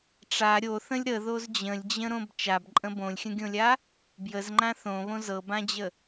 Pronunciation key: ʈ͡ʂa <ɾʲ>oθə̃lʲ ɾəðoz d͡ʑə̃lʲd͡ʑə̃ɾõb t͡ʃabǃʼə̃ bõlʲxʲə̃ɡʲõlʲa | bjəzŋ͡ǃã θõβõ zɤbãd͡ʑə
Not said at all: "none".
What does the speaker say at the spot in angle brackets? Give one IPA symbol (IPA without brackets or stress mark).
ɾʲ